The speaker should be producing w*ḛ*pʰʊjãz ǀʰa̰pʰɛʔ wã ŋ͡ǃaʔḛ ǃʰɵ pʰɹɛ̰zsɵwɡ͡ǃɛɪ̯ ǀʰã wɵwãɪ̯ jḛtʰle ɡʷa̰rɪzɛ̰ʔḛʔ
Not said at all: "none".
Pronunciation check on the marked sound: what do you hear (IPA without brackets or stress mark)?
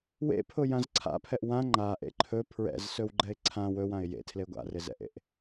ḛ